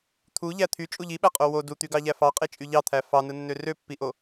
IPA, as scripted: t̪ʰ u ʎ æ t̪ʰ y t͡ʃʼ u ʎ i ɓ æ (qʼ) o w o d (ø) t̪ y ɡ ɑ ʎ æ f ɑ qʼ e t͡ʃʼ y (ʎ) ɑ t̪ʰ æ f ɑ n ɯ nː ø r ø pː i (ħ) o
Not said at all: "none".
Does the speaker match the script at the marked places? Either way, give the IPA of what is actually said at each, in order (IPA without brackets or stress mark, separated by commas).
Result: qʼ, u, ʎ, ʔ